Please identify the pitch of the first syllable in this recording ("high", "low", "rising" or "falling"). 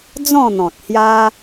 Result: falling